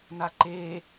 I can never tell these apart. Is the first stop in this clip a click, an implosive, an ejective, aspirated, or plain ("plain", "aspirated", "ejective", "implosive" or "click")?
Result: click